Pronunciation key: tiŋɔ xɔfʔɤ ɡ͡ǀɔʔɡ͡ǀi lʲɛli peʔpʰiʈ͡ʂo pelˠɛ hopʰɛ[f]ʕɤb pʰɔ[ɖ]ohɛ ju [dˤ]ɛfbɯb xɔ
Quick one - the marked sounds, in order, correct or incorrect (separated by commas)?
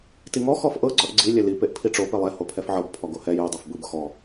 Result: correct, incorrect, correct